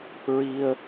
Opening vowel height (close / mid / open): close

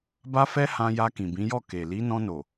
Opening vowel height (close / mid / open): open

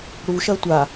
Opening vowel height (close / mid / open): close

